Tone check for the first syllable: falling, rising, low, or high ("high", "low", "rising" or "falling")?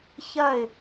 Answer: falling